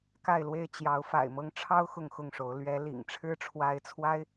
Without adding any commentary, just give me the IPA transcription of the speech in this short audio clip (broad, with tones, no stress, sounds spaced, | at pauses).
k a˥˨ ɪ̯ l w e˥˨ ɪ̯ t͡ɕ j ɑ˨˦ ʊ̯ f a̰˨˩ ɪ̯ m ɤ˦ ŋ ʈ͡ʂʰ ɑ˦ ʊ̯ x ʊ˥˨ ŋ x ʊ˥˨ ŋ ʂ o˨˦ ʊ̯ l ɥ ɛ˨˦ l ḭ˨˩ ŋ ʈ͡ʂʰ ɻ̩˦ ʈ͡ʂʰ w a˨˦ ɪ̯ t͡sʰ w a˦ ɪ̯